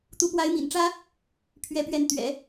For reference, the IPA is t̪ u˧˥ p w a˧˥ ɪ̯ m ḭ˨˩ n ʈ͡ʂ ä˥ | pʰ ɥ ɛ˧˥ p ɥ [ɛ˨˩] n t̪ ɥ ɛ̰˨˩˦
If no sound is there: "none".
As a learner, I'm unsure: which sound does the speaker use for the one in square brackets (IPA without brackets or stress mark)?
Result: ɛ˧˥